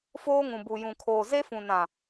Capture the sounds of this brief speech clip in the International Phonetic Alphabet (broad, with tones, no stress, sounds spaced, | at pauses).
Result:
f oː˦ ŋ ũ˨ b u˨ j ũ˨ kʰ oː˨ z e˦ f ũ˨ n ã˨